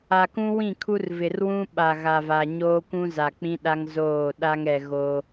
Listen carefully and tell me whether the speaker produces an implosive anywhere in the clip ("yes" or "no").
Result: yes